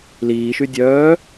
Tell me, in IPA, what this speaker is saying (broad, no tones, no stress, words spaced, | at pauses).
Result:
liːʃy dʲœː